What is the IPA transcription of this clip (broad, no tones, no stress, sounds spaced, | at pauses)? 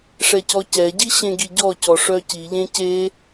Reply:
ʂ ɛ c ɔ c ɛ ɟ i ɕ ẽ ɡ i ɟ ɔ c ɔ ʂ œ c i ʎ ẽ c e